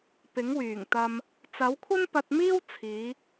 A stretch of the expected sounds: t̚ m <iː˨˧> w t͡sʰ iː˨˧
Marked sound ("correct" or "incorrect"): incorrect